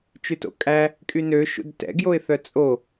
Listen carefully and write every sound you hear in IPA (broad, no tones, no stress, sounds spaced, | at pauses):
t͡ʃ ʉ t o̰ kʼ æ | kʼ y n ø ʃ ṵ d t ɛ̰ ɡ j o ɪ̯ θ œ t͡sʼ o